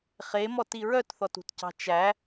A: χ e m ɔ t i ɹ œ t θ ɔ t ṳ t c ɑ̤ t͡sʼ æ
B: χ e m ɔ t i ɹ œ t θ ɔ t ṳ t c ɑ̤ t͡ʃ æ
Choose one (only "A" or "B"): B